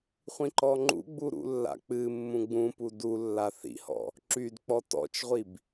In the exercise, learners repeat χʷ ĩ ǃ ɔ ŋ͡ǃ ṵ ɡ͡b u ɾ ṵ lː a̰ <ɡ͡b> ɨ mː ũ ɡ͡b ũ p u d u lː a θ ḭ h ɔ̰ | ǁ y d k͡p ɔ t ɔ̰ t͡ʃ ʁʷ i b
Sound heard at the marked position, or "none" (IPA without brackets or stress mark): k͡p